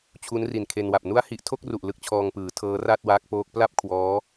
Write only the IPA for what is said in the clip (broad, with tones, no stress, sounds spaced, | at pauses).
t͡ɕʰ u˦˥ n r i˨˩ n kʰ e˧ n w a˨˩ p̚ n u˦˥ a̯ h i˨˩ ʔ tʰ o˥˩ k̚ r u˨˩ ʔ l ɯ˦˥ k̚ t͡ɕʰ ɔː˧ ŋ p ɯː˩˦ tʰ ɤː˦˥ r a˥˩ t̚ w aː˦˥ k̚ p oː˦˥ k̚ p l a˥˩ p̚ kʰ w ɔː˦˥